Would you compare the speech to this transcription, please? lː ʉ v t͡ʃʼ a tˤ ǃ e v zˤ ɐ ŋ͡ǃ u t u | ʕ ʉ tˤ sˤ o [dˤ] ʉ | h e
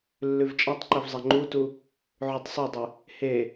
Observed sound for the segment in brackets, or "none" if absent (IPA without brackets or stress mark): dˤ